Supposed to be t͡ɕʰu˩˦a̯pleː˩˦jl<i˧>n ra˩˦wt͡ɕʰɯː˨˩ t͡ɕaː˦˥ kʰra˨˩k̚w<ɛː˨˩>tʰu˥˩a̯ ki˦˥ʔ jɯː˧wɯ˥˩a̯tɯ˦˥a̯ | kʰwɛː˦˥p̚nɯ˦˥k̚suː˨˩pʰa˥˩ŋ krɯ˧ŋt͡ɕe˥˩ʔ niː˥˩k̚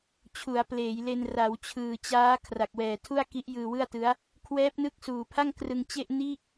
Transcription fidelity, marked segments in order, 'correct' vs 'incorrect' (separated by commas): incorrect, correct